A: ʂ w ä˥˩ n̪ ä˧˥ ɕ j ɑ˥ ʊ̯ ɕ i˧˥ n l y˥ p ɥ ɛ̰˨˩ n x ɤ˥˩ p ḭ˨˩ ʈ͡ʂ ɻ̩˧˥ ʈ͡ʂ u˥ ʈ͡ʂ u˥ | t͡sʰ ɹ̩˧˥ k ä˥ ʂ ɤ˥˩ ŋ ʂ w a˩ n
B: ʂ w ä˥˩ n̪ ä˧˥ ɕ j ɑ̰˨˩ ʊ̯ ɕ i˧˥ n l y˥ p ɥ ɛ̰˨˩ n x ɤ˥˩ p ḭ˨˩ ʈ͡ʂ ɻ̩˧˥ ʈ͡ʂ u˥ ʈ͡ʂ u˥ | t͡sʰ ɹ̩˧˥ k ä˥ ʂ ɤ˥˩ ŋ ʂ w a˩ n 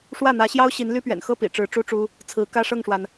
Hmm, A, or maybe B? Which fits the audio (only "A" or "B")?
A